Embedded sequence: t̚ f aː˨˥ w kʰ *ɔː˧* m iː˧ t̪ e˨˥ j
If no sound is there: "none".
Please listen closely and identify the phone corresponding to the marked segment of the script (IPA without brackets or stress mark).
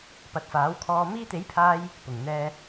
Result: ɔː˧